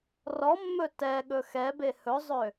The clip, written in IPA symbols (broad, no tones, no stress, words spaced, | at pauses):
rɔmːɵ tɛɠɵ xɛbe hɵzˤø